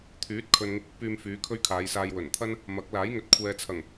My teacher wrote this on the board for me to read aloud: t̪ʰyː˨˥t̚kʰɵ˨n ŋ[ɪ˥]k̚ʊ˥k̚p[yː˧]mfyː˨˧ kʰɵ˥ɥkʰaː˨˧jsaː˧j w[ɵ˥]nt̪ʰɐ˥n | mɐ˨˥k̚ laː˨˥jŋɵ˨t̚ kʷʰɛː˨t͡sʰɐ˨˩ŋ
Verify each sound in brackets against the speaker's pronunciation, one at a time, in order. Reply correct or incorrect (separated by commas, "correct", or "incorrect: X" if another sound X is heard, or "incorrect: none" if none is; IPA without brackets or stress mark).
incorrect: ɪ˧, correct, incorrect: ɵ˨˩